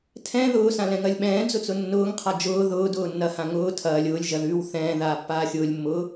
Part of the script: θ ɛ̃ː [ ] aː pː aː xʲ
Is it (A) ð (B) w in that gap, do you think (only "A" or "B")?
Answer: A